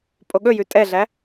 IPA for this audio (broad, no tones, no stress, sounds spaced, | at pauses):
pʼ o ɠ ɵ j ʉ tʼ ɛ ɮ æ